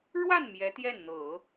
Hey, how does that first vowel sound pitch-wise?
falling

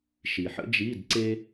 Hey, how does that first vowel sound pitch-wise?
low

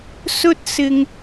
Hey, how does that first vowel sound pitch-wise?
high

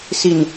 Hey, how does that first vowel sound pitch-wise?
low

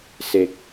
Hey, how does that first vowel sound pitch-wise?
low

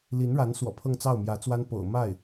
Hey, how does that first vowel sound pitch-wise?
rising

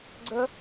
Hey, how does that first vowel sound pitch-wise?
high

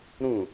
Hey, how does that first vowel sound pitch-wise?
falling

